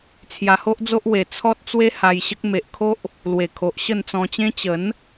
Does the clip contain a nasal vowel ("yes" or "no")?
yes